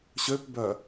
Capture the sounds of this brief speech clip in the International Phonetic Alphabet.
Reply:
ɕ ø p b œ

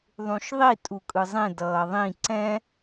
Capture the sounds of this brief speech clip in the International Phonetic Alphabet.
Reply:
ðˤ ũ ʃ ðˤ i tʼ u kʼ ɯ zˤ ẽ d ʌː ðˤ ĩ ǀ ɛ̃

